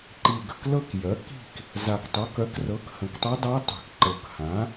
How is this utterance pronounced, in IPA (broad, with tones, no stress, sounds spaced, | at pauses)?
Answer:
ǃ i˨˩ ɡ ə̤˥˨ k l ɤ˥˨ k j œ˩˥ k i̤˥˨ k | z a˨˩ k tˤ ɤ˩˥ k œ˩˥ k r ɤ˩˥ k h ə̃˨˩ k tˤ œ˧˥ dˤ ɤ˧˥ tˤ i̤˨˩ k ǃ ɤ˨˩ k h ã˩˥